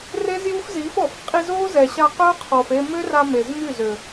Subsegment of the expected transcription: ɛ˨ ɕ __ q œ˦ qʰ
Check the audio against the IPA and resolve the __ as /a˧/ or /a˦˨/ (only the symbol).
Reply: a˧